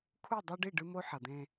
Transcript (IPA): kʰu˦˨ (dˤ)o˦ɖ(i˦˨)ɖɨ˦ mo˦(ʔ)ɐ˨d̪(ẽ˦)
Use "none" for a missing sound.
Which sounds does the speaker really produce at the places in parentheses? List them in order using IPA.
dˤ, i˦˨, ħ, ẽ˦

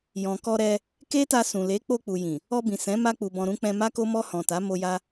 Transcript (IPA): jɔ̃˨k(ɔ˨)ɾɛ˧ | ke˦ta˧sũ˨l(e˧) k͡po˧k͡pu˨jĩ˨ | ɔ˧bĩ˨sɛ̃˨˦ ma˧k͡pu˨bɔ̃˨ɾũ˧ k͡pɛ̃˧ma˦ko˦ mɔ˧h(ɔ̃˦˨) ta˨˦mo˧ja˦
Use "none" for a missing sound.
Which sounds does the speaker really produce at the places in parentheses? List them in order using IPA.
ɔ˧, e˨˦, ɔ̃˨

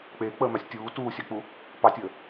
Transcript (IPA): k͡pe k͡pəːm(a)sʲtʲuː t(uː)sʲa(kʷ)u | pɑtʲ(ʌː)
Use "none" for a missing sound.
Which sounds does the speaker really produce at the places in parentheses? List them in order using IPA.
a, uː, k͡p, əː

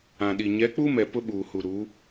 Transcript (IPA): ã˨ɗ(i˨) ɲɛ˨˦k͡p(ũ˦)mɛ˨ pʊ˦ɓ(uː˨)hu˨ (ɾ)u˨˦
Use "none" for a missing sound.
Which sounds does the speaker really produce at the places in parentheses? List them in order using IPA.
i˨, u˦, uː˨, ɾ

